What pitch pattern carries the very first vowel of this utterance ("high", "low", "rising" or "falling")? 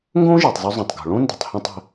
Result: high